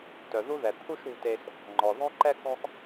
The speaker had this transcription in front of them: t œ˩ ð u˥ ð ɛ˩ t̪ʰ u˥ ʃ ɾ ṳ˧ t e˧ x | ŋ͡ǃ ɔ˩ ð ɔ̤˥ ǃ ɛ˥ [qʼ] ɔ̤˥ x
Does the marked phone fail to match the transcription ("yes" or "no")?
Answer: yes